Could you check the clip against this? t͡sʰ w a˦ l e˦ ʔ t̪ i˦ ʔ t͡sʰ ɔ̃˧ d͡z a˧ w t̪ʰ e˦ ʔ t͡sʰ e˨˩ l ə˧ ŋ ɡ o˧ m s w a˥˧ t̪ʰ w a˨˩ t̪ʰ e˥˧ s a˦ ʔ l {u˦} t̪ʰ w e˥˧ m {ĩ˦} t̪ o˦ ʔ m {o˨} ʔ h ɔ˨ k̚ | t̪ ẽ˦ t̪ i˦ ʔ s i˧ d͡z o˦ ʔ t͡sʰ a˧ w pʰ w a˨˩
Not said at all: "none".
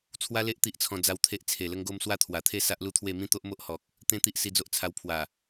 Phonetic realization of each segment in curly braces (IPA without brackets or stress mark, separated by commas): u˦, ĩ˦, o˦